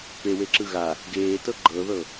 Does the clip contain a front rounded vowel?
no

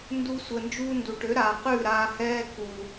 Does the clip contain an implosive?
no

